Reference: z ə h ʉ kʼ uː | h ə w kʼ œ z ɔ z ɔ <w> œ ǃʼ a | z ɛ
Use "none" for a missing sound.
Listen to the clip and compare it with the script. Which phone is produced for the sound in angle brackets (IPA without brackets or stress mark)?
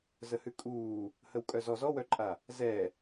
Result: w